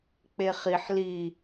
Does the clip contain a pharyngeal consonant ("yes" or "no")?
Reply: yes